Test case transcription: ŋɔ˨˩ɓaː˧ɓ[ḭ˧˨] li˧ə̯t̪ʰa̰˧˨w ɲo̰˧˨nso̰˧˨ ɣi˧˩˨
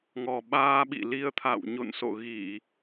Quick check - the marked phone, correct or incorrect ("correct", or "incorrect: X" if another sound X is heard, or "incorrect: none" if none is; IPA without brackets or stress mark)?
correct